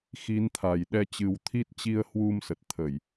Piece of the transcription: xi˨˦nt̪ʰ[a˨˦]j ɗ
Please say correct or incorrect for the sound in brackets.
incorrect